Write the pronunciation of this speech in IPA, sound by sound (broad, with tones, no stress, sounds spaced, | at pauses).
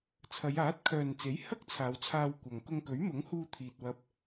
t͡sʰ ɐ˨˧ j aː˨˥ t̚ kʰ œː˨ n t͡s e˨˥ j h ɐ˥ k̚ t͡sʰ aː˨˧ w t͡sʰ aː˧ w kʷ ɐ˨ ŋ k ʊ˧ ŋ k ɵ˨˥ ɥ m ʊ˨˥ ŋ h uː˧ t̪ʰ iː˨ t̚ w ɐ˧ p̚